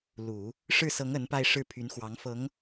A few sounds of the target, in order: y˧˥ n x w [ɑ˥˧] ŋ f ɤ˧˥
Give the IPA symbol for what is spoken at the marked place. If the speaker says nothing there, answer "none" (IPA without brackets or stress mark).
ɑ˧˥